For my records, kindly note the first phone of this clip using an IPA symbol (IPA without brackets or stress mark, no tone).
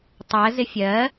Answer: tˤ